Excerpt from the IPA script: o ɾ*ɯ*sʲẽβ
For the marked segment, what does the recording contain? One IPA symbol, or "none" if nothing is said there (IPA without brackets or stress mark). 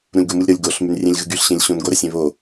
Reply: ə